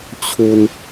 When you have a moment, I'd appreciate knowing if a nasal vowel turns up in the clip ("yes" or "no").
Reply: no